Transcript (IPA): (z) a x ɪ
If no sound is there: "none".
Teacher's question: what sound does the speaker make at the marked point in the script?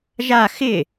ʒ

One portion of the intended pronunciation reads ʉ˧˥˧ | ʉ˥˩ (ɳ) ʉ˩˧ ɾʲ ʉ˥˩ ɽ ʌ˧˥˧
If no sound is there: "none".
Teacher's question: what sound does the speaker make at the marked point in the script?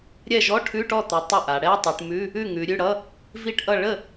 ŋ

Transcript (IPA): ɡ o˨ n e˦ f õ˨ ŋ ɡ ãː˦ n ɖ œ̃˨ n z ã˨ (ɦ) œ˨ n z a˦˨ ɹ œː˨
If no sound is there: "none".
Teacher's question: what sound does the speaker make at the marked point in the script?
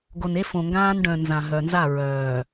ɦ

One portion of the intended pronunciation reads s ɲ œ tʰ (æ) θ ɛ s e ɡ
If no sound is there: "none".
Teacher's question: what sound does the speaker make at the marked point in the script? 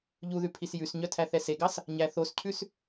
æ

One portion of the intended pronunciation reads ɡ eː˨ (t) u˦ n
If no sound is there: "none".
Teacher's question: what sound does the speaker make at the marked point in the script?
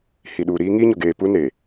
p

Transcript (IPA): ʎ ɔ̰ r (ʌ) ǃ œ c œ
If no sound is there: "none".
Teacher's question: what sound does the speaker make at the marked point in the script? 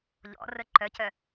ə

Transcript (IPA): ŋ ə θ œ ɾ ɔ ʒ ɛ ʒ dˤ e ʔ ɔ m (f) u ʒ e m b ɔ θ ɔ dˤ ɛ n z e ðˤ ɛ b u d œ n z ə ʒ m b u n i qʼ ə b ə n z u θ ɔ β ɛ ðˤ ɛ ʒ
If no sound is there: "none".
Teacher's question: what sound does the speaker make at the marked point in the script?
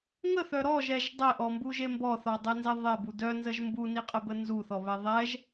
b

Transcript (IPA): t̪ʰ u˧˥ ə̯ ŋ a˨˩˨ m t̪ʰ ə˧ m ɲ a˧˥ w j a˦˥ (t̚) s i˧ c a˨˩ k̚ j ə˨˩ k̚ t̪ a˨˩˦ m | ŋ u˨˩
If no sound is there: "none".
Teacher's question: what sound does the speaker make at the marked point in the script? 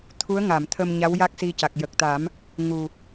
k̚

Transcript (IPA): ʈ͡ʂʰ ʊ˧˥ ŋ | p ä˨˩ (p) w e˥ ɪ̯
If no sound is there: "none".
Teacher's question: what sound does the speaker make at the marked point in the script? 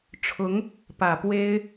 p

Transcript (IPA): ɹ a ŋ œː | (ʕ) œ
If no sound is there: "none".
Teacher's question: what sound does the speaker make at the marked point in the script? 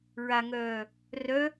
r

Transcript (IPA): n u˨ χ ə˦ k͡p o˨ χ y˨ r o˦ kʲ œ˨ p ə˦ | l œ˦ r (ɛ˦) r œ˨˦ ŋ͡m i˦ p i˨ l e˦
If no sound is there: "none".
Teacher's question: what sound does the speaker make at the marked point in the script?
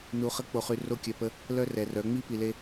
ɛ˨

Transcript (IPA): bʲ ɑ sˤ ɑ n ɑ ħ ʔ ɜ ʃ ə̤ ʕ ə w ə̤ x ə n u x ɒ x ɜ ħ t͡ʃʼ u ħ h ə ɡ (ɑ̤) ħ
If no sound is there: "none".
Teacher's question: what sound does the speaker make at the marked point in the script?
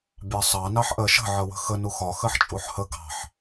ɑ̤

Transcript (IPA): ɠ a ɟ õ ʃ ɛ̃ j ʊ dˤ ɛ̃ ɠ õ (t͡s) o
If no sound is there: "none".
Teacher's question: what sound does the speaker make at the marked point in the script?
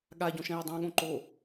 ǃ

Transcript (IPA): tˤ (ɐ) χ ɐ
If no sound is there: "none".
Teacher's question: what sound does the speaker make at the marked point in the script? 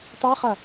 a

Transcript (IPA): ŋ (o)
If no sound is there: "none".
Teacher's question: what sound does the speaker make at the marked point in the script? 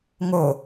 o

